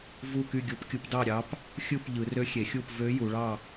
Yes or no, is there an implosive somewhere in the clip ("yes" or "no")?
no